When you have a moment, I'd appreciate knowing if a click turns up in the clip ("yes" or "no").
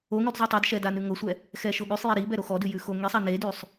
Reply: no